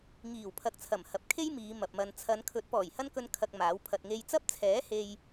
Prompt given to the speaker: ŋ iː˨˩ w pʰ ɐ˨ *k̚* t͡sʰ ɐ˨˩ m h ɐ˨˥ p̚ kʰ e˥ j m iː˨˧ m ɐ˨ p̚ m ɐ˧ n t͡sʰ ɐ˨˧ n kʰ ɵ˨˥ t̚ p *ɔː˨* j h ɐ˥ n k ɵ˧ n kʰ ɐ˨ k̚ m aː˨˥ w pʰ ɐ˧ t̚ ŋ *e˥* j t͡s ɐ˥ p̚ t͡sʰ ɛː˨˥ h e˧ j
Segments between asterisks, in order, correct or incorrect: correct, incorrect: ɔː˨˩, correct

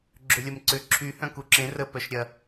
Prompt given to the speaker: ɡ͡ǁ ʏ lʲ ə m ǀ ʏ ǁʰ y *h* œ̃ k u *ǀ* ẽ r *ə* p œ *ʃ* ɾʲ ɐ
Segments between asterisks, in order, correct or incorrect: correct, incorrect: ǁ, correct, correct

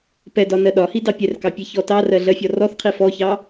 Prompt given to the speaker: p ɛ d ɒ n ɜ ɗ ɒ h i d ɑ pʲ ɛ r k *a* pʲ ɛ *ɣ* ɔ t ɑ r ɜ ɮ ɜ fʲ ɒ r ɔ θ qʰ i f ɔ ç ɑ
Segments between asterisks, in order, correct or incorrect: incorrect: ɑ, incorrect: ç

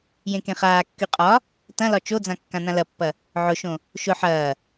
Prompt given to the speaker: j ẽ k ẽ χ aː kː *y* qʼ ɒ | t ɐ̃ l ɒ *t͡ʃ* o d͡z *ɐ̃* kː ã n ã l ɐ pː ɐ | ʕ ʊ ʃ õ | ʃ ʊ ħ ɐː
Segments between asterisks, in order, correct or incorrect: correct, correct, incorrect: ã

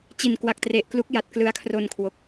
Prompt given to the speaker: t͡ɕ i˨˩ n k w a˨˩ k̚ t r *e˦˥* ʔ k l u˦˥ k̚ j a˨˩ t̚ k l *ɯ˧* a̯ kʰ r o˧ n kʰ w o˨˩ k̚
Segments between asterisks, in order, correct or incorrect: incorrect: e˨˩, incorrect: ɯ˦˥

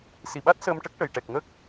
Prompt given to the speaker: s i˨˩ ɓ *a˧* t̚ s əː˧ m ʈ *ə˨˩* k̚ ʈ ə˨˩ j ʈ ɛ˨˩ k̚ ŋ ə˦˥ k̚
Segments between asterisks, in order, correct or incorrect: incorrect: a˦˥, incorrect: ə˦˥

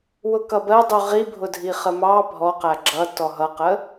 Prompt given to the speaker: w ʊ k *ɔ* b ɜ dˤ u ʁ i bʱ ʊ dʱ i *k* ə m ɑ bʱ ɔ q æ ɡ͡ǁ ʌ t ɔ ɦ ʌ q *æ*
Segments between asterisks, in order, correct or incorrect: incorrect: ʌ, incorrect: χ, incorrect: ə

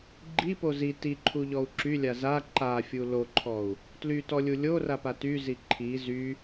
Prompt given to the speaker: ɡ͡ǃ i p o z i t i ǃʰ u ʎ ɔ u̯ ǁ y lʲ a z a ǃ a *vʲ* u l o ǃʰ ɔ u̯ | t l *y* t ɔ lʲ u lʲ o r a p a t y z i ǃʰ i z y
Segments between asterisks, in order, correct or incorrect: incorrect: fʲ, correct

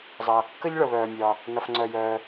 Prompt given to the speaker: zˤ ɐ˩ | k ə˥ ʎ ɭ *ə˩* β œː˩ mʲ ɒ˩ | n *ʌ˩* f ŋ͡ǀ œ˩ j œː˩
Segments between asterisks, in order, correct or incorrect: correct, correct

